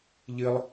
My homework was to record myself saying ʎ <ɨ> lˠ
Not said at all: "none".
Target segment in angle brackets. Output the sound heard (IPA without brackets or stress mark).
ɨ